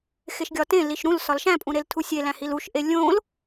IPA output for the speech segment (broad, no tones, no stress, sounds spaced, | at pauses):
x e ʃ ɡʲ ɒ t ẽ l i ʃ ɾ ũ l s ɒ l ʃ æ̃ pʼ ũ ɾ e l tʰ u sʲ e l æ̃ h i l u ʃ ʔ e lʲ õ l